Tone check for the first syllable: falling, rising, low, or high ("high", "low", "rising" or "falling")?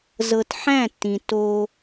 low